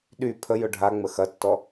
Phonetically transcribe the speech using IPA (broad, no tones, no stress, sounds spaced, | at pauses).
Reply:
ɗ y pʰ ə j ʊ ɖʱ a ŋ͡m ə x ɐ tː ɔ